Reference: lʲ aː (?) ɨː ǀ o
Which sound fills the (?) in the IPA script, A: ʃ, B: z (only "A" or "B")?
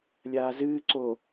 B